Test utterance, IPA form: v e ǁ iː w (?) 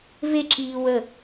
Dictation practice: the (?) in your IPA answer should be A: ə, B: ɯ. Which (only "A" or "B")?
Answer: A